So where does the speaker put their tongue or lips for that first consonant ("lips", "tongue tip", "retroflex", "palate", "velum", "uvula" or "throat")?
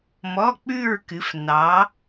lips